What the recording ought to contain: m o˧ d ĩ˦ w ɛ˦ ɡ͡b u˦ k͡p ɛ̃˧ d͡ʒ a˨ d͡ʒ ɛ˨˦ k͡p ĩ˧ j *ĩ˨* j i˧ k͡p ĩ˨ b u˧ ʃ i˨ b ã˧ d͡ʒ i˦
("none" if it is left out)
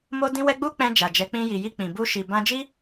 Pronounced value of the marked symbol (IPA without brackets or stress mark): i˨